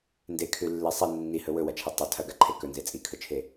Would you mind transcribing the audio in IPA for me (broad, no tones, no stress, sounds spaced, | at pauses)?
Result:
n d e kʰ ʉ lː e sˤ e nː i h ɵ w ɵ w ɐ t͡ʃʰ e tˤ ɵ tʰ ɐ ɡ a ǃʰ e k ɵ n z e t͡sʼ i kʰ ɵ t͡ʃʰ e